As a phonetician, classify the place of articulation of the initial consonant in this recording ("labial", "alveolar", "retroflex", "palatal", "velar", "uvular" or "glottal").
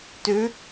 alveolar